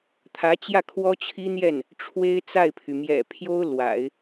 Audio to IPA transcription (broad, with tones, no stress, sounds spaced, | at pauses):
t̪ʰ ä˧˥ t͡ɕ j ä˥˩ kʰ w ɔ˥ t͡ɕʰ i˥ n̪ j ɛ˥˩ n | ʈ͡ʂʰ w e˥ ɪ̯ t͡s a˥˩ ɪ̯ pʰ y˩ m j ɛ̰˨˩ pʰ j o˥ ʊ̯ l w a̰˨˩˦ ɪ̯